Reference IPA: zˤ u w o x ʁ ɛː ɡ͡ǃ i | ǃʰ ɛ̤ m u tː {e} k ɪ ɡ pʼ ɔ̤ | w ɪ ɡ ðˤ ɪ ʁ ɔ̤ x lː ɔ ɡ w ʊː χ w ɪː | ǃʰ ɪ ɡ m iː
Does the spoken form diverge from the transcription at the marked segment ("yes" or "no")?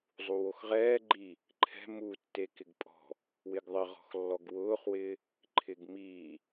no